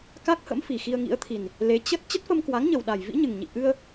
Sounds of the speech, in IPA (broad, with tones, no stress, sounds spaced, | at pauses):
k a˦˥ k̚ h ə̰˧˥ m f i˨˩ x i˧ ə̯ ŋ ḭ˧˥ ə̯ t̪ʰ i˨˩ n | l e˨˦ t͡ɕ ə˦˥ t̚ t͡ɕ ə˦˥ t̚ f ə˧ m k w a˨˦ ŋ ɲ ə˨˩ w ɗ a˨˩ j v ḭ˧˥ ɲ ɨ˨˩ ŋ ɲ ḭ˧˨ ʔ ɨ˧ ə̯